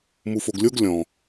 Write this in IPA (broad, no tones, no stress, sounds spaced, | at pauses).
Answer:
m u f o ɡ lʲ o ɡ lʲ ɔ̃